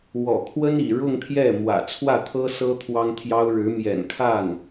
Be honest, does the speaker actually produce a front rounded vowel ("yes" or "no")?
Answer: no